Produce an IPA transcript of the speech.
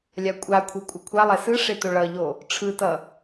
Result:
lʲ a kʷʼ a kʷʰ e kʷʼ ʌ kʷʰ a lˠ ɛ s ɯ ʂ e t o ɭ ʌ ʎ o | ʈ͡ʂʰ ɯ t ʌ

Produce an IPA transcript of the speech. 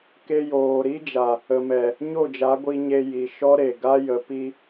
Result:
k e˧ j oː˨ ɾ i˦ d͡ʒ a˨ | ə˨ m ɛ˨ | ɲ o˦˨ d͡ʒ a˨˦ ɡʷ i˧ ɲ e˧ j i˨ ʃ ɔ˦ ɾ e˨ ɡ a˦ j ə˨˦ p i˦

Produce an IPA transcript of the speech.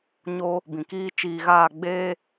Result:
ɲ oː˦ | b ĩ˨ k iː˦ t͡ʃ iː˧ ɣ aː˦˨ ɡ͡b eː˦

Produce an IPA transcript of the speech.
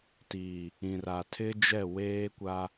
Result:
t iː˨ | ĩ˨ r a˨ tʰ ɪ˦ d͡ʒ ɛ˦˨ w eː˦ kʷ a˦

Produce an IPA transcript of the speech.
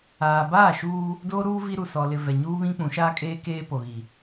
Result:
aː˨ b aː˦˨ ʃ uː˦ | d oː˦ ɾ uː˦ v i˦ ɾ u˨ s ɔ˨ l ɪ˨ v ɛ˨ ɲ uː˦ β ĩ˦ k͡p ũ˨˦ ʃ aː˦ kʼ eː˦ k eː˦ p o˨ ɣ i˨

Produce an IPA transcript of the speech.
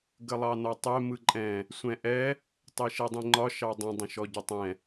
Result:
ɡ ə lˠ ɑ n ɒ tˤ ɛ m ɯ ǃʼ ɛ̃ | sʷ ɛ̃ ʔ ɛ | tˤ e ʃ ɛ dˤ ĩ ŋ͡ǃ ɒ ʃ ɑ dˤ ə̃ dˤ ə̃ ʃ ɔ ɟ ə tˤ ɛ̃

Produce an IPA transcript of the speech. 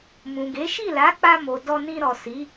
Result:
m ũ˨ ɡ e˨˦ ʃ i˦˨ l a˨˦ k͡p a˧ m o˨ d ɔ˧ n ĩ˧ ɾ ɔ˨ s i˨˦

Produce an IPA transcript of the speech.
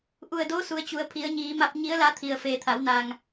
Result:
ʔ u˧˩ ə̯ d oː˧˥ s u˩˧ ə̯ t͡ɕ u˩˧ ə̯ pʰ i˩˧ ə̯ ɲ iː˩˧ m a˧ p̚ ɲ i˧˥ ə̯ l a˧˥ t̪ʰ i˩ ə̯ f eː˩˧ t̪ʰ a˩˧ w n a˩ ŋ

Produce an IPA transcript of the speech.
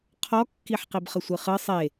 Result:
qʰ ɔ kː i ħ q i b χ ə sʷ ɨ χ ɨ sˤ e

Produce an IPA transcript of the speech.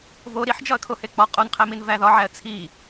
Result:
v o ɾ i ħ d͡ʒ ɒ ə̯ kʰ o h e k͡p ɒ qʼ o n qʰ æ m i n v æ ð ɒ ʕ æ ə̯ t͡sʰ i

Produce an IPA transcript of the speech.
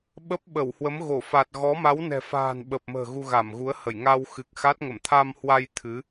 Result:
ɓ ə˦˥ p̚ ɓ ə˧˩ w h w ə˨˦ m ɣ o˧˩ f a˨˩ t̚ ɣ ɔ˨˦ m a˨˦ w n ɛ̤˨˩ f a̤ː˨˩ n ɓ ə˨˩ p̚ m ə̤ː˨˩ ɣ u˧ ɣ a˧˩ m ɣ u˨˦ ə̯ h ə˧˩ j ŋ a˧ w x ɨ˨˩ k̚ x a˦˥ t̚ ŋ ə˧˩ m t̪ʰ a˧ m h w a˧ j t̪ʰ ɨ˨˦

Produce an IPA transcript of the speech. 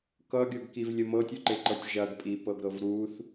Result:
k ʌ ɡʲ ɤ ɡ k i v lʲ ə m ɤ tʲ u ǃ e ǃ ɤ tʲ ʒ ɐ ɡ pʼ i p ɤ ɡ ɾ ɤ v ɾ u θ

